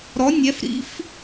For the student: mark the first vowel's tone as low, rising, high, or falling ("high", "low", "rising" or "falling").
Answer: rising